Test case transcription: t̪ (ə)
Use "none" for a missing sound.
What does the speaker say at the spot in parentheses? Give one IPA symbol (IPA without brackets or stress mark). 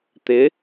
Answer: ɪ